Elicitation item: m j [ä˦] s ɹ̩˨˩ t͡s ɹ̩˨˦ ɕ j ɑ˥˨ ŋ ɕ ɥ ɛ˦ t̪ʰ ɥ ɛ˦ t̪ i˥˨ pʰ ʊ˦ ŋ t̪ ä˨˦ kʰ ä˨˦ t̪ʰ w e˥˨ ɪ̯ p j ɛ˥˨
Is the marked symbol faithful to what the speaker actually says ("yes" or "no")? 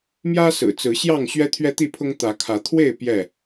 yes